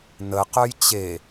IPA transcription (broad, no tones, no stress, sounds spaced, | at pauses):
n ə q œ j t͡ɕ e